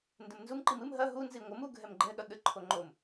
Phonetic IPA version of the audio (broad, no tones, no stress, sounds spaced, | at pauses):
n d ɘ m n z u m ǃ i m ɨ m ɦ ɐ ɦ u n z i ŋʷ ɘ m u ɡʱ ɛ m ɡ͡ǃ ɛ ɠ ɐ ɠ ɘ ǃʰ o ŋ͡ǃ o m